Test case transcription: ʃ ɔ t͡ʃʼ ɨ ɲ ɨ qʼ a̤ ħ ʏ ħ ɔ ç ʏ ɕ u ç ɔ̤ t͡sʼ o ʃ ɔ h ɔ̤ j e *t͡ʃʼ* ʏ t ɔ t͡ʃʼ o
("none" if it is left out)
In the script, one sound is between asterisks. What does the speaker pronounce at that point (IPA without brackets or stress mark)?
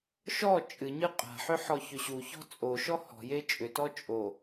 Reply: t͡ʃʼ